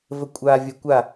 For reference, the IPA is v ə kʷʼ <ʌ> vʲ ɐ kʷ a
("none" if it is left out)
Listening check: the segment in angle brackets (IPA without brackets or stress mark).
a